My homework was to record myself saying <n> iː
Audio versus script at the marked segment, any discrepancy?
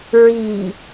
yes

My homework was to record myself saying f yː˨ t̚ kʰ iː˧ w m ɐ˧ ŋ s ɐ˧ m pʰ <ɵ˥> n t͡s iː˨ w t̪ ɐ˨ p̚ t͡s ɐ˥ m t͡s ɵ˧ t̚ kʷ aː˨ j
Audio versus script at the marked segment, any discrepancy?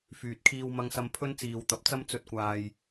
no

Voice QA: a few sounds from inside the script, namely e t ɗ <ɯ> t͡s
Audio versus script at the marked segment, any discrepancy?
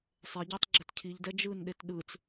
no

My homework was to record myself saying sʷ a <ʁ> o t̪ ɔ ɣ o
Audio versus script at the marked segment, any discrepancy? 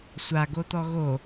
yes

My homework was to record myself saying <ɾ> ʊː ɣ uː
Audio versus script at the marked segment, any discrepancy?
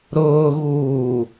no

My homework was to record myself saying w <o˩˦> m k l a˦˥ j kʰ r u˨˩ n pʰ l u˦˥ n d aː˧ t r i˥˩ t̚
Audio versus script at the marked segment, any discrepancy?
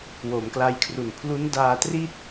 no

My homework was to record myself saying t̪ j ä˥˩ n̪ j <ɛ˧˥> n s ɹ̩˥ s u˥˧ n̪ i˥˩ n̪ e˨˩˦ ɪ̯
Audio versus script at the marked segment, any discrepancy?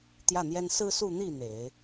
yes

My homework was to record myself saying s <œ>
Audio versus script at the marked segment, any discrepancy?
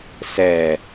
yes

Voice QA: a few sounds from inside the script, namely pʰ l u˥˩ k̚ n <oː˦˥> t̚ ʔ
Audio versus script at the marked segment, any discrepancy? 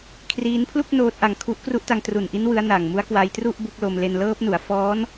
no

